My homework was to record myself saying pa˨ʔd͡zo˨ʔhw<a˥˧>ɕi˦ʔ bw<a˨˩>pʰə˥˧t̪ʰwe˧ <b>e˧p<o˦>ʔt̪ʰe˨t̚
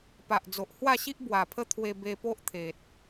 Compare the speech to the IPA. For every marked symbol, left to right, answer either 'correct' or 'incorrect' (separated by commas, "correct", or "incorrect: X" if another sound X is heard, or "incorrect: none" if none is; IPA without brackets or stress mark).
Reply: correct, correct, correct, correct